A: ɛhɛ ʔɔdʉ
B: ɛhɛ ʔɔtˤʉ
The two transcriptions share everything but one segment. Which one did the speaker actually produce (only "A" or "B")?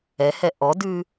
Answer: A